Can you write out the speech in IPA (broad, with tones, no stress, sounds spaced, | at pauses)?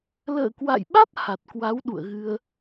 l ə̰ː˧˨ k w a̰˧˨ j ɓ a˦˥ t̚ h a˨˩ t̚ k w a˨˦ w ɗ ṵ˧˨ ə̯ ɣ ɨ˧ ə̯